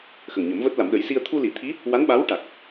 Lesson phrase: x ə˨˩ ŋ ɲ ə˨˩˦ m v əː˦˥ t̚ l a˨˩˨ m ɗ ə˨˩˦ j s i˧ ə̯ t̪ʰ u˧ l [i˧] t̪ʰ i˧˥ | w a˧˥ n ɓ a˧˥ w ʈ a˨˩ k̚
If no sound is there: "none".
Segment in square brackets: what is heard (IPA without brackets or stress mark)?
i˨˩˦